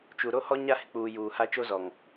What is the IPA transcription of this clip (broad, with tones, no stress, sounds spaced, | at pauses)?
t͡ʃ u˨ ɾ o˦ h ɔ˦ ɲ a˦ h ɪ˨ k͡p uː˨ j uː˨ h a˦ t͡ʃ o˦ z ɔ˨ ŋ